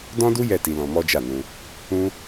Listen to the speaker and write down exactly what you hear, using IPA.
dɔ̃˦du˦ jɛ˦˨ti˧lɔ̃˧ mɔ˦d͡ʒa˦˨nũ˧ | ũ˦

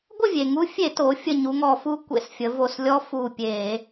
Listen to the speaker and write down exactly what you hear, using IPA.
ɡʷə˥˨vʲe˩ŋu˧˥ fʲe˧˩˧ to˩˧ fʲə˧˩ɲu˩˧ŋɔ˧˩˧fu˧˥ kʷḛ˧˩˧sfʲə˩˧vo˧˩slʲɔ˧˥ fu˧˩pʲe˧˩˧

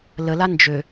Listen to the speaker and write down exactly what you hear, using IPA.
ləla nd͡ʒø

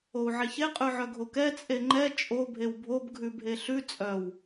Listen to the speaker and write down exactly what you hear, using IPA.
ou̯ʕeçe qʼʉʕœɡʱokɛ t͡sʼeŋ͡ǃɛ t͡ʃʼo bʱewbʱob ɡʱʉbʱeɬʉ t͡sʼœw

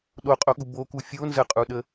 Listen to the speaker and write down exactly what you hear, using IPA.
ɗoqʼoɠu boku fʲon zəqʼuɗə

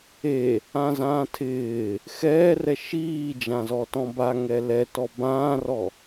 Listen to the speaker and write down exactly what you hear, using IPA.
e | ãzãːtʰɪː | xɛːrɛ ʃiːd͡ʒãzɔ tɔ̃baŋɛ lɛtɔ bãːrɔ

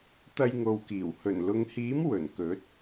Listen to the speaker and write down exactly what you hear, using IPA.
t̪ɐ˧jŋo˨wkiː˨˩w hɵ˨˩nlʊ˨˧ŋhiː˨˥m wɵ˨˩nkɵ˨˥t̚

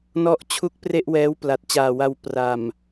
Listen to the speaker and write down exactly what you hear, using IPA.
nɔ˦˥ʔt͡ɕʰu˦˥k̚ pre˥˩ʔwɛː˦˥w pla˨˩t̚t͡ɕaː˨˩wa˧w pra˨˩m

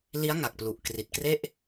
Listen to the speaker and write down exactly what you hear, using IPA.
li˦˥a̯ŋa˨˩k̚plu˨˩ʔ kri˨˩t̚kre˥˩ʔ

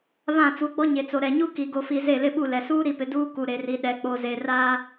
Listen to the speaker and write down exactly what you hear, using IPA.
βã˦˨t͡su˨˦ɡ͡bɔ˦ ɲe˨t͡so˨ɾɛ˨ɲu˦ ki˨ɡo˨fi˨ ze˦˨lɪ˦ɓu˦˨lɛ˨ suː˦ɾi˨pɪ˨ duː˦ ku˨ɾe˨ri˨ ɗɛ˨k͡po˨ ze˨raː˦

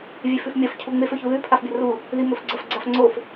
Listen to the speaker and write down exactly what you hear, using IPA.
vʲefʉfmʲɐf cʰuŋ͡mef ɵçuðʉ pʰafbʲɐru | ðimɵfɡ͡ǀɐf ɡ͡ǀafŋ͡ǀof

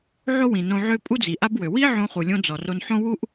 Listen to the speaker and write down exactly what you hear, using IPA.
ʕo˥wĩ˩ nõ˧ʕø˥ pʼu˥d͡zi˩ʔa˥bwø˩ wi˥ ʕõ˧χu˩lʲõ˧ d͡zɔ˩ro˧nħõ˥ wu˥ʔ

